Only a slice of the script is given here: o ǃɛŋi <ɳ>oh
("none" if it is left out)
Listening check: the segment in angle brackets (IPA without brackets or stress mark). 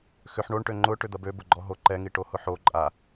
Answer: ʈ